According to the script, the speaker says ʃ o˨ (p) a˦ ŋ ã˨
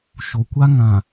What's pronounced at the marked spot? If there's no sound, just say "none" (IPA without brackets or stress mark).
kʷ